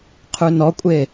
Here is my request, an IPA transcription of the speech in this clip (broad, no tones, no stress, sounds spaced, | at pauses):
qʰ ʉ n ɔ kʷʼ e